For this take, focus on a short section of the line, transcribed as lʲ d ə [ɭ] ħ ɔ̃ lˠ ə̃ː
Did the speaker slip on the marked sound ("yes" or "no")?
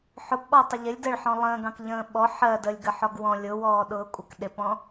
no